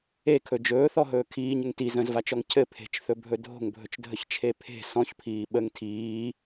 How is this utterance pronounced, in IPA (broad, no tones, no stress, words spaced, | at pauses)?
ekʰɵ d͡ʒɵːθɔɦɵː kʰiːɲɘŋ ti zə̃zvat͡ʃɔŋ cʰɘ pʰe̤t͡ʃθɵbʱɵ dʱo̤ŋbʱɵt͡ʃdʱəçt͡ʃʰe pʰe̤ sɔ̃çpʰiː ɓəŋ tʰiː